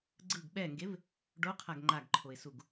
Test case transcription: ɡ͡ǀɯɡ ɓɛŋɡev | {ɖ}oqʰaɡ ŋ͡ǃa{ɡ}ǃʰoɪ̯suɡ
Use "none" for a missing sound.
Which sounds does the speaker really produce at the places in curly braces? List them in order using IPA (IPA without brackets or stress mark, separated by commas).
ɖ, ɡ